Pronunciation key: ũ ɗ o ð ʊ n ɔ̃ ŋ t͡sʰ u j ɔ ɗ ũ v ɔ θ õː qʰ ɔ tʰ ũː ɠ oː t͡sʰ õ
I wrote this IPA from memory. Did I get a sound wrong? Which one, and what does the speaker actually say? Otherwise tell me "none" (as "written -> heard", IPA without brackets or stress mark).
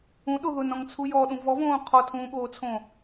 θ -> v